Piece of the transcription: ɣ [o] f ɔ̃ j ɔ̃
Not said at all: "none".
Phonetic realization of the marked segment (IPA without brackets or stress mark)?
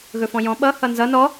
ɵ